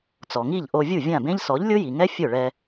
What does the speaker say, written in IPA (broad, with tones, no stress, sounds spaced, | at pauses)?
t͡s ɔ˩ ŋ i˥˩ ʎ ʔ o˧ vʲ u˥˩ vʲ ã˥˩ b ẽ˥ ʎ s ɔ˩˥ ʎ lʲ ʊ˥ j i˩ ŋ ɛ˥ fʲ ʊ˥˩ ɭ ɛ˧